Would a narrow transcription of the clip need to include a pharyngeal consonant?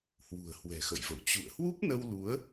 no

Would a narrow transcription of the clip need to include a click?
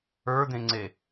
yes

